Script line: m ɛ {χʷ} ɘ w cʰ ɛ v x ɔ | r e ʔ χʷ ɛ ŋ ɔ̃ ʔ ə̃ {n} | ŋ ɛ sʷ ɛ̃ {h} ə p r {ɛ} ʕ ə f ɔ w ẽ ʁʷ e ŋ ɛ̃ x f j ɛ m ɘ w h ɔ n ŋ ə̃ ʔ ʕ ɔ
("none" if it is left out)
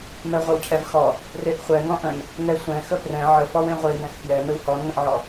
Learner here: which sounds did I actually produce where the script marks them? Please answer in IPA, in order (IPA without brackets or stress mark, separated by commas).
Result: ʁʷ, n, x, ɛ̃